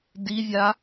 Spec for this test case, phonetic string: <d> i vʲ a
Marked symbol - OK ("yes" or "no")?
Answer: yes